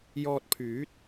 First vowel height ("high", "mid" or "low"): mid